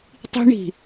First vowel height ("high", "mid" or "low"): high